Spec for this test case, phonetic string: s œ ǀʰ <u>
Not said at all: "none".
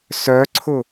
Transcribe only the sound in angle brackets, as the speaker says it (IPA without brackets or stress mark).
ʊ